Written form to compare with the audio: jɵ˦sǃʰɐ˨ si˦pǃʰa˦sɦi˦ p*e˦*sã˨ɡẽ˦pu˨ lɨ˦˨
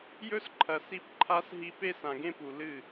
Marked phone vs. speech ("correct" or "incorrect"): correct